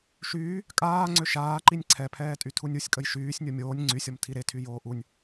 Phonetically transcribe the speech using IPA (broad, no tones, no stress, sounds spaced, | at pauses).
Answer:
ʃ yː | kʼ aː ŋ͡ǀ ø ʃ aː ǃ i nʲ ǀʰ ɛ pʰ ɛː tʼ y tʰ u nʲ u sʲ kʼ ə j ʃ yː sʲ nʲ o mʲ oː nʲ ŋ͡ǀ y sʲ ɔ m tʰ i ɾ e tʰ y j oː ʔ u nʲ